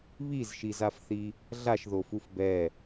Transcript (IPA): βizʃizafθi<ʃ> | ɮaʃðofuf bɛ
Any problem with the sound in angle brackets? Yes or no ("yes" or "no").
yes